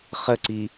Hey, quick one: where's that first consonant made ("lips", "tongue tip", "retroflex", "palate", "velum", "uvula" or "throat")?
uvula